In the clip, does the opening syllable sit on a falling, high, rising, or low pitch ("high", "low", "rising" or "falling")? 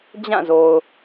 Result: falling